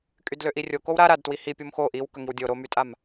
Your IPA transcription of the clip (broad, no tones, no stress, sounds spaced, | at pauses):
kʼ y d l ø ʔ i rʲ o k o w ɾ a ɾ a d t w i h i pʲ o m x o ʔ i w k ə ŋ i w dʲ o ɾ o m y tʼ a m